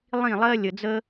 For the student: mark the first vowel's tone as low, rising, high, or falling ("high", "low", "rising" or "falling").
falling